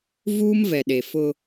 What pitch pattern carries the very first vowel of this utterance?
high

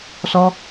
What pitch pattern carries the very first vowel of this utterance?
high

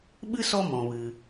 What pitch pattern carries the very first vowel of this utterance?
high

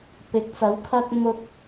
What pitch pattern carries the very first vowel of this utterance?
rising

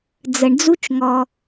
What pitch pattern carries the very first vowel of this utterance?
low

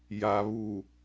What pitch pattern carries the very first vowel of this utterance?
low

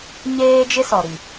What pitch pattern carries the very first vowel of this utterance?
high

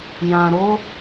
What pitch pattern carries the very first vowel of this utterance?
low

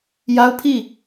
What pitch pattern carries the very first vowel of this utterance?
high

